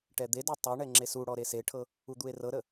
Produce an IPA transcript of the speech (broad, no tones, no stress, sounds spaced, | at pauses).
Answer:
ʈ ɛ d̪ e d o tˤ o ɳ ɛ ŋ͡ǁ e s u ɽ ɔ ɾ e s e ʈʰ ɤ | u d̪ u e̯ r ɤ ɾ ə